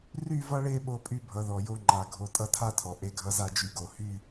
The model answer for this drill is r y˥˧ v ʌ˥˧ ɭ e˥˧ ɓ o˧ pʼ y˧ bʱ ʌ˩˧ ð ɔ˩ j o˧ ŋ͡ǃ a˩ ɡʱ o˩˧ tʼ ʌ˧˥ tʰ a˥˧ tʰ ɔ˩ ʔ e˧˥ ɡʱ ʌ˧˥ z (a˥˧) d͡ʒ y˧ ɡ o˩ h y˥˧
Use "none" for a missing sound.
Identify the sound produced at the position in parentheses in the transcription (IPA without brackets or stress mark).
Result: a˥˧